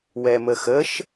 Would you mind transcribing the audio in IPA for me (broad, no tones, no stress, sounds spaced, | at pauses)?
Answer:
w ɛ m ə x ə ʃ